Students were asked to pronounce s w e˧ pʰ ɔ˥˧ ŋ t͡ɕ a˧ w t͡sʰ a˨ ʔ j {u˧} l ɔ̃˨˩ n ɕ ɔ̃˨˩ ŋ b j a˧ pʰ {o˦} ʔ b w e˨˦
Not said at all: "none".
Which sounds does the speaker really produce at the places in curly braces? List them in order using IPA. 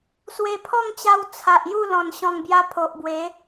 u˥˧, o˨

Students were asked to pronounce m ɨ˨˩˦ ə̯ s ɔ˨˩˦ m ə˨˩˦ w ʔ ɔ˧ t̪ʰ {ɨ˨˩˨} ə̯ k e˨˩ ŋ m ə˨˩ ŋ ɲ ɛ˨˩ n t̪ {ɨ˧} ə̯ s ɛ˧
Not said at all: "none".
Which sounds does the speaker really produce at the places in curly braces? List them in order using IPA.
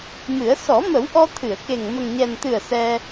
ɨ˨˩˨, ɨ˨˩

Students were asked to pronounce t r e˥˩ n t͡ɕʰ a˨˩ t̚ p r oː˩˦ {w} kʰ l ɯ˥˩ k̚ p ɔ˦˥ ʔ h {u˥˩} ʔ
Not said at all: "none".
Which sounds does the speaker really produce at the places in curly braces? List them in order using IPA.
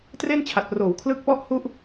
w, u˦˥

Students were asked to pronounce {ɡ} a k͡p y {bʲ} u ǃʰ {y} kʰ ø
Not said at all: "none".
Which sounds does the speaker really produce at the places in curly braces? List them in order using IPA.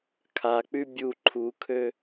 kʰ, bʲ, u

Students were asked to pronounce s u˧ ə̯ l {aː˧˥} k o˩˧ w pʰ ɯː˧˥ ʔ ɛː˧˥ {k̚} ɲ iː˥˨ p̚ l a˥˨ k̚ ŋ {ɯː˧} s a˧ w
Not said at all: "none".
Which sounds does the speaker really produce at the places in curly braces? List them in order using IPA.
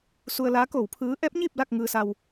aː˧˥, p̚, ɯː˧

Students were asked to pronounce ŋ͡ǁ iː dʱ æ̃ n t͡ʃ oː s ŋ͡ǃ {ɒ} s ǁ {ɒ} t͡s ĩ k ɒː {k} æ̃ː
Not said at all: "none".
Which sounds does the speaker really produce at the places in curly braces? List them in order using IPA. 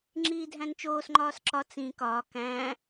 ɒː, ɒ, k

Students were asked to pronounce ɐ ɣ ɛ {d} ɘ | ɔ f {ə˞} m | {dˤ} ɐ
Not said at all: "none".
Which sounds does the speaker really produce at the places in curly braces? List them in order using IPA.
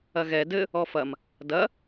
d, ɐ, d

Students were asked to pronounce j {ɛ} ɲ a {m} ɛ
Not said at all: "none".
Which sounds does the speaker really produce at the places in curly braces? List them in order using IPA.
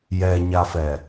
ɛ, f

